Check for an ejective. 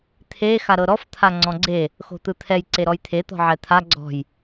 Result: absent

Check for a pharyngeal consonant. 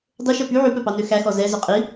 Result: present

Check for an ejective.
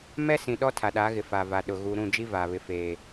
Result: absent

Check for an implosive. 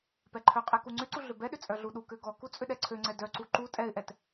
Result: present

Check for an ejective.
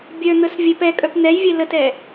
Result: present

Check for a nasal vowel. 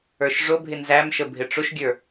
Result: absent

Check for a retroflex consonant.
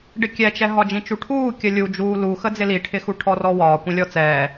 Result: present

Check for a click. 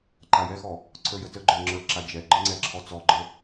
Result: present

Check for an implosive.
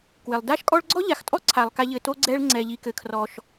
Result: absent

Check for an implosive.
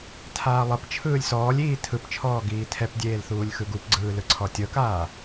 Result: absent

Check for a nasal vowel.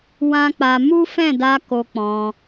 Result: present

